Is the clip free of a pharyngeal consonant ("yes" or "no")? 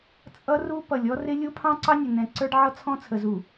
no